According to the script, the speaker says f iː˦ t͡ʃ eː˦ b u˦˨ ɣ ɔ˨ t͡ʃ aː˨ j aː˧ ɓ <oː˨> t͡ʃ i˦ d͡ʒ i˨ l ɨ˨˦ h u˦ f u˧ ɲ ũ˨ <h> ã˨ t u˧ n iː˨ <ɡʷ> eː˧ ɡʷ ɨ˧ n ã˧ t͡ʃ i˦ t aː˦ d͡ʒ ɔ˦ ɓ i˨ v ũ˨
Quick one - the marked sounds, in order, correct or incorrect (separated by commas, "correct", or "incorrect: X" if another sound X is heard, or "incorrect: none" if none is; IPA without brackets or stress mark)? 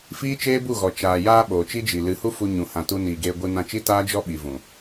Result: correct, correct, incorrect: ɡ